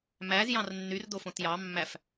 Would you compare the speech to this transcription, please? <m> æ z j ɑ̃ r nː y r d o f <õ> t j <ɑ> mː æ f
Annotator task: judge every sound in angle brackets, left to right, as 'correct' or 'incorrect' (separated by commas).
correct, correct, correct